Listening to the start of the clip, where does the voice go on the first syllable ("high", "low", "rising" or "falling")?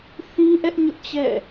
high